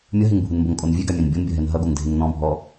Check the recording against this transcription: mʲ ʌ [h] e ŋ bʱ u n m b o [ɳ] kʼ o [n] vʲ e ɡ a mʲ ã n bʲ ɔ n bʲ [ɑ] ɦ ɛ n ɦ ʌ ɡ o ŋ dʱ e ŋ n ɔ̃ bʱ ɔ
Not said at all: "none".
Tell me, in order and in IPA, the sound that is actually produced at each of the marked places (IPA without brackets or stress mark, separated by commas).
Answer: ɦ, ŋ, n, ʌ